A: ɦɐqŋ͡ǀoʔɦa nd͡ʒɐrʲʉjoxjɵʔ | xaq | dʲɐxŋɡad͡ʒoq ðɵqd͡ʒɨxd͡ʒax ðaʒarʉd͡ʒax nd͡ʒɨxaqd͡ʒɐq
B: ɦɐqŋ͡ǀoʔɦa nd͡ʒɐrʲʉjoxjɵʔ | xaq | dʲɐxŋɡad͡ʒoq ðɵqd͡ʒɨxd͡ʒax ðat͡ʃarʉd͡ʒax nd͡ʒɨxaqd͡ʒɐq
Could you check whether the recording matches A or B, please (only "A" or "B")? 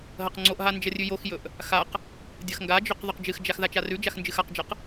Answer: B